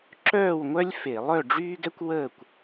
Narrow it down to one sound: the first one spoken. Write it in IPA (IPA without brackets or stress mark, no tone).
ǁ